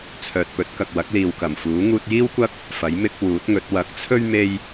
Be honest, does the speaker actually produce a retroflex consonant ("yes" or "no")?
no